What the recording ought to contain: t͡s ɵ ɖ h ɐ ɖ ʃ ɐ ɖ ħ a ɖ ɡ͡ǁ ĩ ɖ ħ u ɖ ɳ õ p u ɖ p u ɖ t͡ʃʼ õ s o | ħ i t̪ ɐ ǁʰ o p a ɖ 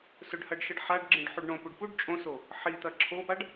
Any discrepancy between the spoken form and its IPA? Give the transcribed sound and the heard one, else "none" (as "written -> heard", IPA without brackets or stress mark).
t͡s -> s